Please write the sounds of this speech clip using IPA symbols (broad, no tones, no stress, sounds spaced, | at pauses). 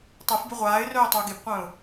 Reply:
tˤ e f b y ʁʷ aː ɪ̯ r œː tˤ y ʊ̯ ɡ e b qʷ œ̃ː ʊ̯